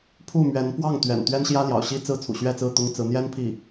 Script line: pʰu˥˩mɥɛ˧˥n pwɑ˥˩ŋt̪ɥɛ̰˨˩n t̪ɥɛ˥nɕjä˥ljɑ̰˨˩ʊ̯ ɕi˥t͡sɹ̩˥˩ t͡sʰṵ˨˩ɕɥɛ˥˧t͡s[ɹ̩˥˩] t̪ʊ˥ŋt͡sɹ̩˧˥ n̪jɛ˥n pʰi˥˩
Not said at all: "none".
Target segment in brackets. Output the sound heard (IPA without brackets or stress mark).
ɹ̩˥˩